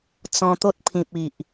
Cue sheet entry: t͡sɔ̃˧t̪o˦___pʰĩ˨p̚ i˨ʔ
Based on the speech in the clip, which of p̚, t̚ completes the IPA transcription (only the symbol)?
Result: t̚